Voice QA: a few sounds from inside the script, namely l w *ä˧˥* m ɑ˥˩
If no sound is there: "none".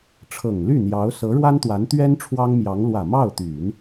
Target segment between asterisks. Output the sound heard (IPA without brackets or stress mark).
ä˨˩